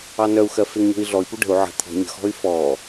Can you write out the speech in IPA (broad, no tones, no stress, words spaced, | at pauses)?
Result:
ɑnœu̯xɜ feŋɲo̤i̯ɮɔi̯pu ɖə̤u̯ ʕə̤ t̪ʰɔ̤ ɲə̤xɔ̤y̯ fɔ